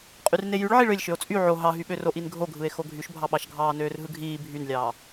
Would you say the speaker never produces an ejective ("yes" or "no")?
no